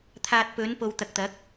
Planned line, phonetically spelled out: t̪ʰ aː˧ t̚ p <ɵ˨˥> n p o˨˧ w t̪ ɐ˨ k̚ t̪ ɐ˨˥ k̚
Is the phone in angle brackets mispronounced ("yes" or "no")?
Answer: no